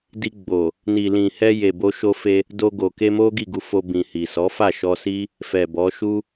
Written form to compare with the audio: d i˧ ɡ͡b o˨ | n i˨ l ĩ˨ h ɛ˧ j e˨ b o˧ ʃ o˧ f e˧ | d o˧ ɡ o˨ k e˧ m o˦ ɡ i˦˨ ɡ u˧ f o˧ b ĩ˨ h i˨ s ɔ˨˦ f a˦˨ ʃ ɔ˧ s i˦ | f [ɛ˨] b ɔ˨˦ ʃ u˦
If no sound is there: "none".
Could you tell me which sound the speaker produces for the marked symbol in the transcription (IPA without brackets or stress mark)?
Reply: ɛ˨